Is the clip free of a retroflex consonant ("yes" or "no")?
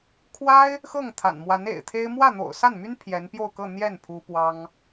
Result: yes